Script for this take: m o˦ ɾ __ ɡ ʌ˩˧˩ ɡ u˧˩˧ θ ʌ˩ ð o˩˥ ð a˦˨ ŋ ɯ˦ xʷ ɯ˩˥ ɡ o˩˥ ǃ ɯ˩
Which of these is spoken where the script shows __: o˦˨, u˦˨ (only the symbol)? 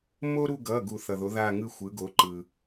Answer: u˦˨